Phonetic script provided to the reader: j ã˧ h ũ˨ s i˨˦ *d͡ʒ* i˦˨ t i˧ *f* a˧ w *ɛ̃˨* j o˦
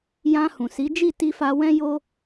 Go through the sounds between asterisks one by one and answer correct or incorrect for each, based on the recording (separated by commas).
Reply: correct, correct, incorrect